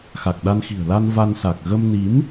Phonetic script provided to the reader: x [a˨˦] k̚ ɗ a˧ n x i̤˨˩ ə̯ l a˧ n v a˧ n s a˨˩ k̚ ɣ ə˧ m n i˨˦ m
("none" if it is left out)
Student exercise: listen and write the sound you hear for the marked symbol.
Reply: a˨˩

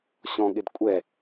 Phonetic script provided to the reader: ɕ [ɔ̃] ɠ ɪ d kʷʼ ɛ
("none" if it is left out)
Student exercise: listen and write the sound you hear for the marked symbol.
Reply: ɔ̃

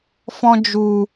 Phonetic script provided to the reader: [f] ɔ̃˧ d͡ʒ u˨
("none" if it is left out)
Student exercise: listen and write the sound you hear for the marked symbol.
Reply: f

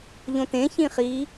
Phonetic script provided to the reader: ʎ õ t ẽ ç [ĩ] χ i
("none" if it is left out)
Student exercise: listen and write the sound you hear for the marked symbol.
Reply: ĩ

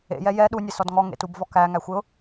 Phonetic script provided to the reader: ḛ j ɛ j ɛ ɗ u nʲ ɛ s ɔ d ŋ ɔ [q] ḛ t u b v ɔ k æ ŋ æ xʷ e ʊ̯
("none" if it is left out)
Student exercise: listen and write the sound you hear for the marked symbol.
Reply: ŋ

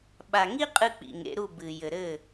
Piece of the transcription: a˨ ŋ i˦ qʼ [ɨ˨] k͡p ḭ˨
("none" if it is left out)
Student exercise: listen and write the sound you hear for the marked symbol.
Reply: ɨ˧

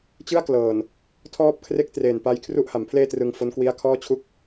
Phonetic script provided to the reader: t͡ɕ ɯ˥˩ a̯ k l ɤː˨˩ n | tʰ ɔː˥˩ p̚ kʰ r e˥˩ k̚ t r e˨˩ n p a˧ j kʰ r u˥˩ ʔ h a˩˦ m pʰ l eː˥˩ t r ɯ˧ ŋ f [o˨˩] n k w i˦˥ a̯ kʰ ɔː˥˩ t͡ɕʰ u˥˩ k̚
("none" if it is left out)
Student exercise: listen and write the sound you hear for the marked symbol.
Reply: o˦˥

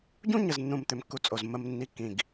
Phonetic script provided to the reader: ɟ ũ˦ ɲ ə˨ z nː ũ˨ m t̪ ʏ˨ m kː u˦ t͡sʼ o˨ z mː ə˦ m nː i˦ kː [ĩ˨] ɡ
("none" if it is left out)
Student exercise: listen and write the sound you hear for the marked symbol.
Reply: ĩ˨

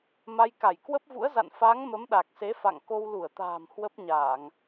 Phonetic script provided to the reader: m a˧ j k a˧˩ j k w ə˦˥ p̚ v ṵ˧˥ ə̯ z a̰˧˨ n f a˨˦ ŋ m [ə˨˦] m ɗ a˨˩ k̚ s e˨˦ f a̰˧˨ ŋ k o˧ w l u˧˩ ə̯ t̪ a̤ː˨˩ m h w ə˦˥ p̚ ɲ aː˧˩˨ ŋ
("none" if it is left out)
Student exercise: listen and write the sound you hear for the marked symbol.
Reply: ə˨˦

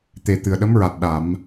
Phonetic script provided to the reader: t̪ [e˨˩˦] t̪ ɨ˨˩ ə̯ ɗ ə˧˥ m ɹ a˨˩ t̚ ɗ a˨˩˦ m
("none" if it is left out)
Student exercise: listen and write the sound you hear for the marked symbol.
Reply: e˨˩˦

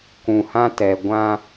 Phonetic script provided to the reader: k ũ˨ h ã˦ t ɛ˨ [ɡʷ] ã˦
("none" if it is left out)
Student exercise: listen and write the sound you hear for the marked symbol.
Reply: ɡʷ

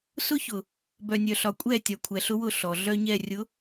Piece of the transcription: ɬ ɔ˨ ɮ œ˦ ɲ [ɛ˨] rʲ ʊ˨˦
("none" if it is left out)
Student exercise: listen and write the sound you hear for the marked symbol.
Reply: ɛ˦˨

